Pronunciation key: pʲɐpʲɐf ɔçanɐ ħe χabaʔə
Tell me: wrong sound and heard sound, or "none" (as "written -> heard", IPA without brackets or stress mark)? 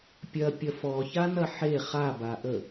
none